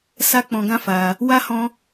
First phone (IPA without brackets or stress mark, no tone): s